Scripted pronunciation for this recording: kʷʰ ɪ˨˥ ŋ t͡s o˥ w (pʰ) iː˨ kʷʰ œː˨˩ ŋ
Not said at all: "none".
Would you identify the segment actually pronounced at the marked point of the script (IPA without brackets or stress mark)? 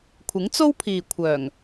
pʰ